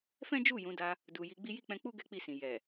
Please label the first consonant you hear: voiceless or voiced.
voiceless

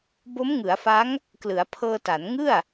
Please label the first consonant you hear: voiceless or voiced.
voiced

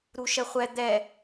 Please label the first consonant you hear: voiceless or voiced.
voiced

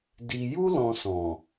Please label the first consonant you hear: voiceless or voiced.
voiced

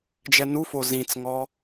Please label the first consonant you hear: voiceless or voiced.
voiced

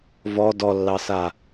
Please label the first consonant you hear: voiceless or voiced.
voiced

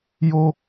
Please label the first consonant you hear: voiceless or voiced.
voiced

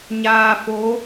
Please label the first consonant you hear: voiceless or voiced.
voiced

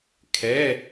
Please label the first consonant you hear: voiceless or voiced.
voiceless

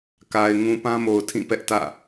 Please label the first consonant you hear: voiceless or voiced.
voiceless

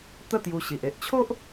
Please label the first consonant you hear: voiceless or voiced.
voiceless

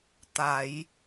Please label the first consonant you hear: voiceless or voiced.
voiceless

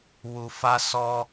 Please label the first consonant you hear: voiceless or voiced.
voiced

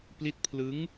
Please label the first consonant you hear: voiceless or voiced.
voiceless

